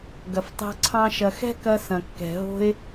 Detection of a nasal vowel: present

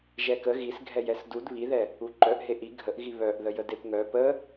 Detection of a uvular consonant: absent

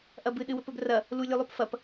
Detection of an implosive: present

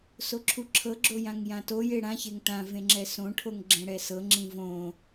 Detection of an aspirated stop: present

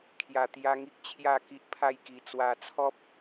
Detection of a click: absent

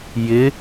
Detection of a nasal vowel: absent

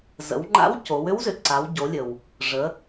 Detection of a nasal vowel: absent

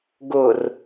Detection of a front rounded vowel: absent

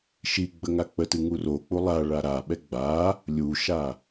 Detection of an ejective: absent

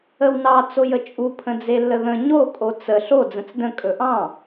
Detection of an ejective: present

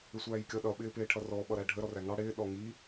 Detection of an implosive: present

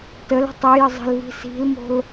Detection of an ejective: absent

